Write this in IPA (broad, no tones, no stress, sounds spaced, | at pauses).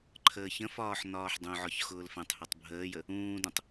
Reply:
ǃʰ əː ç ə̃ f ɒː ħ n ɒː ħ dˤ ũ ʕ ɒ ç x ʊː l f ɛ̃ tˤ h u tˤ bʱ əː j ə | ũː d ũ tˤ